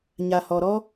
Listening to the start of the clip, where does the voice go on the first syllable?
low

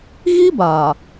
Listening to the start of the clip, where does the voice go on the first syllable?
high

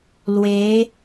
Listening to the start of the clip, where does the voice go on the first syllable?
rising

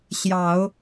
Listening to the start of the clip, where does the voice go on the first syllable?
low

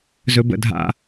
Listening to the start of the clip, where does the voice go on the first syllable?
low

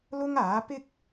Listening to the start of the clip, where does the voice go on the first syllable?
high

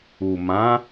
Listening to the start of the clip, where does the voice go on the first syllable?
low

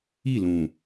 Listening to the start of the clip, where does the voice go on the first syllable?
falling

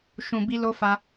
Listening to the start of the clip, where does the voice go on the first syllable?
low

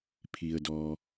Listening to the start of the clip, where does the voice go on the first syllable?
low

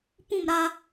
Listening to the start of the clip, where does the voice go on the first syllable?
falling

